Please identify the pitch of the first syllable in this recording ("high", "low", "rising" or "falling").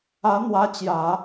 rising